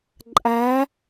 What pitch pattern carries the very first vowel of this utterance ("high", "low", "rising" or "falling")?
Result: rising